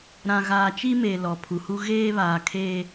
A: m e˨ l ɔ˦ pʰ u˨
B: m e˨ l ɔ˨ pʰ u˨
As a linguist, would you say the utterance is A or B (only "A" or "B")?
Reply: B